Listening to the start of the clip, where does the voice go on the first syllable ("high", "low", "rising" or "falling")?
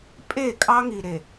falling